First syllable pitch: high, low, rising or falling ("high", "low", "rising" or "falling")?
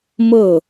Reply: falling